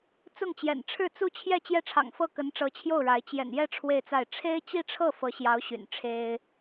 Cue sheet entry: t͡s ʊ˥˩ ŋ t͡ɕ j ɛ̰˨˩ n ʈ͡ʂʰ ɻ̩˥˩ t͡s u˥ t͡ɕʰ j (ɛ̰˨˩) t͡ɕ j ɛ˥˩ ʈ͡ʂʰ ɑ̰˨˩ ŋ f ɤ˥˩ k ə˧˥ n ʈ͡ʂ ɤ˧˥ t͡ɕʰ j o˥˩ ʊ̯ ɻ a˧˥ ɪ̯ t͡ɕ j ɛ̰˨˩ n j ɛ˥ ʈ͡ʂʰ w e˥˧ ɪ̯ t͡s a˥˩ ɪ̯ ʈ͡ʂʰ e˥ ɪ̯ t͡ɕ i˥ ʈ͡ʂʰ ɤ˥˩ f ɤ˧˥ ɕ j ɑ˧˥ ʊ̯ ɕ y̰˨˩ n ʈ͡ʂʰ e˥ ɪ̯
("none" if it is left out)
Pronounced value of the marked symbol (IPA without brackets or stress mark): ɛ˥˧